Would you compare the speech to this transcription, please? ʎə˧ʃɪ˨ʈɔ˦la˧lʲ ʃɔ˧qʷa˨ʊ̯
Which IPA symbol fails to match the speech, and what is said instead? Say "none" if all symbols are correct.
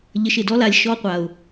ʈ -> d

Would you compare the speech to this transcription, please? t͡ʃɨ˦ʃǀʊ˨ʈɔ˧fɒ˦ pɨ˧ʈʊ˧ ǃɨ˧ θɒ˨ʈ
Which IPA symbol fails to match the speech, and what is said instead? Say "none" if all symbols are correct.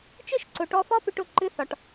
none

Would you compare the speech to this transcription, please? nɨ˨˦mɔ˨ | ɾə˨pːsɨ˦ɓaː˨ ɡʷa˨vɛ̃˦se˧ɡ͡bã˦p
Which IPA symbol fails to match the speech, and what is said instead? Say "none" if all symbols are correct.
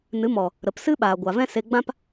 pː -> p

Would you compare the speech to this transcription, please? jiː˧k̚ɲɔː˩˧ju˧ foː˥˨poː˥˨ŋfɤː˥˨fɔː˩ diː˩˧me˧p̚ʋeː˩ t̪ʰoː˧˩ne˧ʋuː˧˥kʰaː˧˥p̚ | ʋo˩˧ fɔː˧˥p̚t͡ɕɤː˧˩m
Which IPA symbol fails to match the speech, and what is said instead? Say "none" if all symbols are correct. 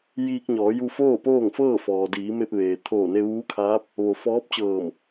none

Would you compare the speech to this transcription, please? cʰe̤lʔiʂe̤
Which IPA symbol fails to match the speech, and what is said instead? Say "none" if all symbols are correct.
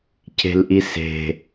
ʂ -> s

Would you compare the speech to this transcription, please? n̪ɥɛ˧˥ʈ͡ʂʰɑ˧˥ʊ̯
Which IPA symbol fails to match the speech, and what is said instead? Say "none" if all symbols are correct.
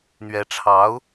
none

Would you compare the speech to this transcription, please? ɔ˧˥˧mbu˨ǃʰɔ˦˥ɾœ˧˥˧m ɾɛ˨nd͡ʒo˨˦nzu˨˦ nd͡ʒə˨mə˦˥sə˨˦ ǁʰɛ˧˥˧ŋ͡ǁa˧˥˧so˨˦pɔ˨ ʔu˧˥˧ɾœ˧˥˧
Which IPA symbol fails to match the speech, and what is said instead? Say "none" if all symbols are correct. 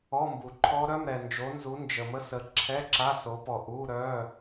ŋ͡ǁ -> ǁ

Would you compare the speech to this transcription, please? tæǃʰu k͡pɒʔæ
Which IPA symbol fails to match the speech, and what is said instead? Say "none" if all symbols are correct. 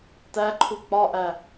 none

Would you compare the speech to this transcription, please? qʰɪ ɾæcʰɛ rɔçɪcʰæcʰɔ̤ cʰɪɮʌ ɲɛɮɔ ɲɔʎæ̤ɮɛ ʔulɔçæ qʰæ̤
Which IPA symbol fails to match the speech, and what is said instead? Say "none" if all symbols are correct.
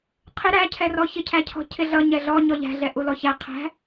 none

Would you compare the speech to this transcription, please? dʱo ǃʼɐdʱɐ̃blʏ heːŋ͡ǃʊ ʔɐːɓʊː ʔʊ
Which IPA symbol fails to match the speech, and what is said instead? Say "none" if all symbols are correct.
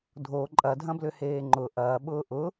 none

